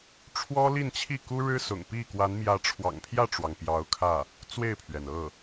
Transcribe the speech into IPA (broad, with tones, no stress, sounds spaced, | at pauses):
ʈ͡ʂʰ w ɔ˥ l i˥˧ n t͡ɕʰ i˥˩ k u˥ ɻ ɻ̩˥ s ʊ̰˨˩ ŋ p i˥˩ k w a˧˥ n m j ä˧˥ ʈ͡ʂʰ w ɑ̰˨˩ ŋ pʰ j ä˥˩ ʈ͡ʂ w ɑ˩ ŋ p j ɑ˧˥ ʊ̯ kʰ ä˥˩ | t͡s w e˥˩ ɪ̯ pʰ ɥ ɛ˩ n ɤ˥˩